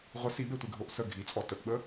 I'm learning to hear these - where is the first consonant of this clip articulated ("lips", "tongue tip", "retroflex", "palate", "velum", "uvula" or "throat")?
uvula